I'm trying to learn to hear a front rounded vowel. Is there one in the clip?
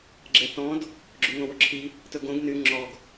yes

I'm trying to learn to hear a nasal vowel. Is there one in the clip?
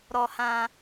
yes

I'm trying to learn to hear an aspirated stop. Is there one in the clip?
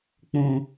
no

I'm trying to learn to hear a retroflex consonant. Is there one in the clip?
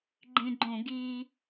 no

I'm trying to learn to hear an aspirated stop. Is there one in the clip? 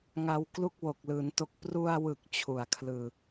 yes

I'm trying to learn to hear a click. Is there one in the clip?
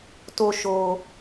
no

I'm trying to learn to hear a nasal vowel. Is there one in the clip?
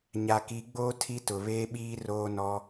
no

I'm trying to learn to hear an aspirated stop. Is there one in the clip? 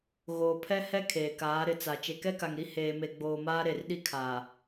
yes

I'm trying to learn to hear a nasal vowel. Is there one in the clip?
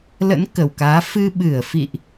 no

